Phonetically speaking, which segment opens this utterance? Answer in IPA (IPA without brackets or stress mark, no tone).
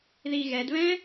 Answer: ð